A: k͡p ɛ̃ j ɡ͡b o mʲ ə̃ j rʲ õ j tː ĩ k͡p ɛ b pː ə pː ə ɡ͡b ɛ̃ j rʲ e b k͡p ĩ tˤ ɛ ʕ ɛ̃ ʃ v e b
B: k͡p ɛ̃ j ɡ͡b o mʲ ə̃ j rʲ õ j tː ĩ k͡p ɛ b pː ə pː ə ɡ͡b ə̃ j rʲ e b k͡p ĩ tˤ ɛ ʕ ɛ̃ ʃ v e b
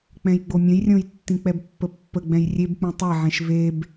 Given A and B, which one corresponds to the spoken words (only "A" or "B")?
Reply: A